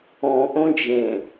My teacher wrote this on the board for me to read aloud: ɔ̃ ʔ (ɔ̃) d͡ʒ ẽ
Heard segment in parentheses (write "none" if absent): õ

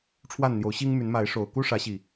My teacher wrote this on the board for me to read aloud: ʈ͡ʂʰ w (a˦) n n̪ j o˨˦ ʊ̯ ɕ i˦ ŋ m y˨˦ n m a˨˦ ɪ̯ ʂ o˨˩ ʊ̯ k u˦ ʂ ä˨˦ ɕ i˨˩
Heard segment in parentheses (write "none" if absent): a˥˨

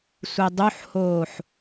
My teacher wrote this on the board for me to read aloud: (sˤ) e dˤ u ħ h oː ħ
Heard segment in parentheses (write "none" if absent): sʷ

